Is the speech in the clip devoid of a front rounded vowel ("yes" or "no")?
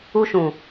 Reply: yes